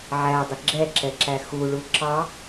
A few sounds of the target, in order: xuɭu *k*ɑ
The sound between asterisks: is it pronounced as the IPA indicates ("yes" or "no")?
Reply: no